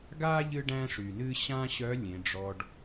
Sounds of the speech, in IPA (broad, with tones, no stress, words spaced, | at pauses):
ɡa˥ ʎɨ˥ɖæ̃˥ʂy˩nɨ˥ ɕã˥ɕœ˧˥ lʲẽ˩˧ɖ͡ʐɔ˧ɖ